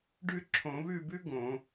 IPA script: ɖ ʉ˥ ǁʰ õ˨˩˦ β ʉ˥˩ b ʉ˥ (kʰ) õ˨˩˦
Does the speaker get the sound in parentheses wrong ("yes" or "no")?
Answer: yes